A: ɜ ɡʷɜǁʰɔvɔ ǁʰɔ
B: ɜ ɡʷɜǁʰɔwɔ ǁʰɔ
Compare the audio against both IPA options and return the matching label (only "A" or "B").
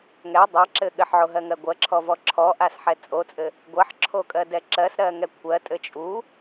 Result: A